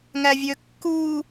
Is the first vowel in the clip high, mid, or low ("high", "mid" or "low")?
low